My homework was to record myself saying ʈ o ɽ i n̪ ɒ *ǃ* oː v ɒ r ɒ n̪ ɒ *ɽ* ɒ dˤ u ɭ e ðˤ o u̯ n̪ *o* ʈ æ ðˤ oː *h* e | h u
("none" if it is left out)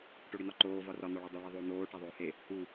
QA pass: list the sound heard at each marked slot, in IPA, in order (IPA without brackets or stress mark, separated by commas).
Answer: ǃ, ɭ, oː, h